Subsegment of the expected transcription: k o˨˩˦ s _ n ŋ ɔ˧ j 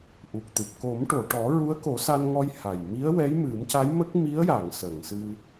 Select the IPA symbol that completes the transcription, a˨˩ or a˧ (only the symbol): a˧